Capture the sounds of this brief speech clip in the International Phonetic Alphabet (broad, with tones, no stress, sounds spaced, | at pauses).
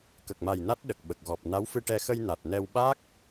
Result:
k ə˨˩ k̚ m a˨˩ j n a˦˥ t̚ ɗ ə˨˩ k̚ ɓ ə˨˩ k̚ ɣ ɔ˨˩ p̚ n a˧˥ w f ɨ˧ ʈ ɛ˧ x ə˧ j n a˨˩ t̚ n ɛ˧ w ɓ a˦˥ k̚